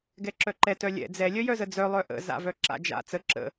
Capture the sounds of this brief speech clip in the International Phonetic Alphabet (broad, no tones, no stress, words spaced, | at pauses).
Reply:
ɡɛǁœǃɛ tœlʲɛ̰ d͡zɛ lʲœjœzəd͡zœ lˠœʔə̰ za̰vœǁa̰d͡ʒa̰ t͡sə ǁə̰